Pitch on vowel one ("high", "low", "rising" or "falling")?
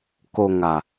low